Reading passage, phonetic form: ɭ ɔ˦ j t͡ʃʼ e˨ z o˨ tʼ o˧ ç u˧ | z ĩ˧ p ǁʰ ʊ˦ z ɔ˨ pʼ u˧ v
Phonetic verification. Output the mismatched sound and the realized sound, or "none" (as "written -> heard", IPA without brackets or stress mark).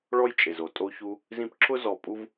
none